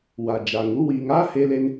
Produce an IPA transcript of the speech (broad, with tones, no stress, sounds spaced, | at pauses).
w a˨ d͡ʒ aː˨ ŋ u˦ w iː˧ ŋ aː˦ h e˧ l e˧ n